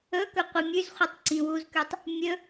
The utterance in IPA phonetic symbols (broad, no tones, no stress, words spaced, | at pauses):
ɵkɵ qʷimʲʉzχʷitˤ ǀĩwuzkʉtˤ | mʲɵ